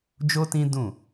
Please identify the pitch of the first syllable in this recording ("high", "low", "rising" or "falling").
high